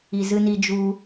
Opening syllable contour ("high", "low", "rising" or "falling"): low